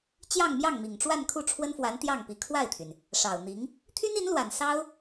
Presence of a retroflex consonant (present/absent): present